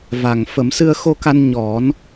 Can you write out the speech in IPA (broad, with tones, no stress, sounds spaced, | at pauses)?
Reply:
v a˨˩ ŋ f ə˨˩˦ m s ɨ˧ ə̯ x o˧ k a˧ n ɲ ɔ˨˩˦ n